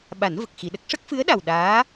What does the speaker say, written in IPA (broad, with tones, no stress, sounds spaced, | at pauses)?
ɓ a˨˩˦ n v ə˨˩ k̚ x i˨˩˨ ɗ ə˦˥ k̚ ʂ ə˦˥ k̚ f ɨ˧˥ ə̯ ɗ a˨˩ w ɗ aː˧˥